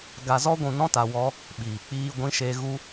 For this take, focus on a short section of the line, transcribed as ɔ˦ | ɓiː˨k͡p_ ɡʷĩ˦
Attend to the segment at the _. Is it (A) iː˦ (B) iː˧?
B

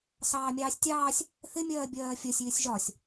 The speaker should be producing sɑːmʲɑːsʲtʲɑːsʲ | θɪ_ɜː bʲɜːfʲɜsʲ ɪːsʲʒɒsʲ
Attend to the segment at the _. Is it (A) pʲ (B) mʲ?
B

